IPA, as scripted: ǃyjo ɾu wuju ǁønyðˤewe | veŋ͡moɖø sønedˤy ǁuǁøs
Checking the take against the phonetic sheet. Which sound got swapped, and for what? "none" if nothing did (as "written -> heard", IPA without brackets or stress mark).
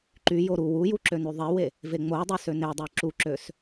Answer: ɖ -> dˤ